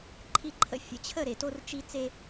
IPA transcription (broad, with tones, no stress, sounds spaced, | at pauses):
ǃʰ i˨ ǃʰ ə̰˨˦ fʲ ə̰˨ t͡ɕʰ ə˦˨ ɾ e˨ t o˦ r t͡ʃ i˦ t͡s e˦